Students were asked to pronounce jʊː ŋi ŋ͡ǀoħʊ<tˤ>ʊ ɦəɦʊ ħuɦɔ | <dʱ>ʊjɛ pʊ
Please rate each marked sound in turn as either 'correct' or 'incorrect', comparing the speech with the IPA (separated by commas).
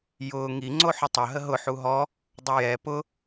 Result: correct, incorrect